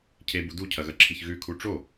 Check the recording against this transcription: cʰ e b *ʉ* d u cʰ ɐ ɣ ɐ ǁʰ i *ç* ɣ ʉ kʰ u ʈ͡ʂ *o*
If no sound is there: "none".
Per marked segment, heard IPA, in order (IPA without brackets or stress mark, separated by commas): u, ç, o